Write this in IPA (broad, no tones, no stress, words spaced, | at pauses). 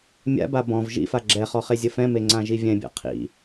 mʲa̰ba bɔ̃v ʒḭfa ɡ͡ǁɛχɔ χezʲəfɛ̃me ŋ͡ǀãʒivʲɛ̃bʲa̰ qʰḭ